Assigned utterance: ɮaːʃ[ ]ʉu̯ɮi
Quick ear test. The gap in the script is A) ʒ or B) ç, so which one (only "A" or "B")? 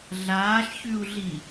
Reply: B